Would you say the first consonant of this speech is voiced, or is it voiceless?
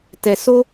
voiceless